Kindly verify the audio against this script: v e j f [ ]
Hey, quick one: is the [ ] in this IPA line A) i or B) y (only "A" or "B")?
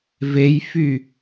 B